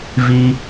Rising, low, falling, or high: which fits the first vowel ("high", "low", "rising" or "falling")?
low